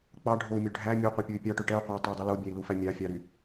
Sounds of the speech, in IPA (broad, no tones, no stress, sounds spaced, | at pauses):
k͡p ɑ ɖʱ o u̯ mʲ ø ɖʱ æ mʲ o qʷ æ pʲ o y̯ pʲ ɑ ʈ ø ʈ ɛ u̯ qʷ ɑ tˤ ɛ dˤ y l o bʲ æ i̯ l u f æ mʲ ɑ fʲ ɑ ɾ y